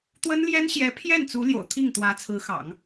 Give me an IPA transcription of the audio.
t̪ w ə˥ n l j ɛ˥ n ɕ j ɛ˧˥ pʰ j ɛ˥˩ n t͡s u˧˥ l j o̰˨˩ ʊ̯ t̪ʰ i˥˩ ŋ t̪ w ä˧˥ t͡sʰ ɹ̩˧˥ x ɑ̰˨˩˦ ŋ

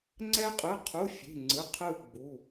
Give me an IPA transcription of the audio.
ŋ͡ǀ ɛ˥ qʼ ɯ˧˥˧ qʰ u˧˥˧ fʲ e̤˧˥˧ ŋ͡ǀ ɯ˧˥˧ qʰ ɯ˥˧ ɡ͡b u˧˥˧

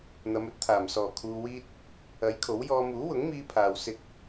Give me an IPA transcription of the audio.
n̪ ɐ˨˧ m ɵ˨ t̚ t̪ʰ aː˨˩ m s ɔː˨˩ kʰ uː˧ w iː˥ t̚ | ɐ˨˥ j kʰ o˨˥ w j ɔː˧ m uː˨˥ w ʊ˨˥ ŋ m iː˧ pʰ aː˨ w s ɪ˧ k̚

